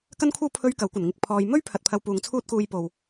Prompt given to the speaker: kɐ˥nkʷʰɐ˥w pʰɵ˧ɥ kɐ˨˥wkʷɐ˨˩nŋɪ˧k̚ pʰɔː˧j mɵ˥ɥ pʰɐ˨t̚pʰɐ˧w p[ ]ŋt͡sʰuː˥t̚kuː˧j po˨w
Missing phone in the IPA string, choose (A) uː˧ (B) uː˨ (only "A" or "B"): B